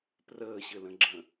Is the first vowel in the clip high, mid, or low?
mid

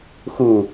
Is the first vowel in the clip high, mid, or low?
high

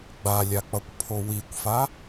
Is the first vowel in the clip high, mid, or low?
low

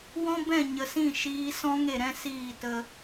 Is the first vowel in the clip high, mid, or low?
mid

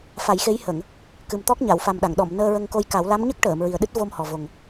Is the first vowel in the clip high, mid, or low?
low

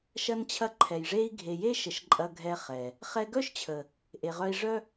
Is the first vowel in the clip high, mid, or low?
low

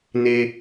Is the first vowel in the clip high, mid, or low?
mid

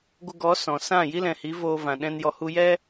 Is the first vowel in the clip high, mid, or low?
mid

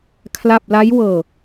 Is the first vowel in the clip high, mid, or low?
low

